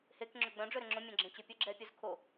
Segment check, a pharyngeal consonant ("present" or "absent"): absent